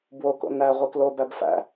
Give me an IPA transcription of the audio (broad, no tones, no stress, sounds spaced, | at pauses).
b w o k o̰ n æ ʁʷ i k l o b æ b f æ̰